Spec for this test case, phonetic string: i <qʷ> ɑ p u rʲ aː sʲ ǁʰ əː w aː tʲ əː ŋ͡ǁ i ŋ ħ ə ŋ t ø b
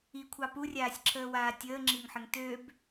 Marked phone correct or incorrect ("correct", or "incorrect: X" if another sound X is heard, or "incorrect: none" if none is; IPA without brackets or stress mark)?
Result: incorrect: kʷʰ